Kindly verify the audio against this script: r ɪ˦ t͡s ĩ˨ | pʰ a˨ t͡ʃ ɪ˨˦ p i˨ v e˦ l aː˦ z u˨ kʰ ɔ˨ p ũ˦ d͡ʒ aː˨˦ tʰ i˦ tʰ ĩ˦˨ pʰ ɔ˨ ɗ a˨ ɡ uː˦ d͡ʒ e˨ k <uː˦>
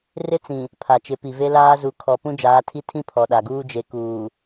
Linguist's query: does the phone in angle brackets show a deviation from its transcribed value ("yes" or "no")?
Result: yes